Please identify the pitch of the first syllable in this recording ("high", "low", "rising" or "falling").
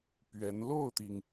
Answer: rising